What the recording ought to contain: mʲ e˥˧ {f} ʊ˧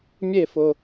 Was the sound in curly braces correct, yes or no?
yes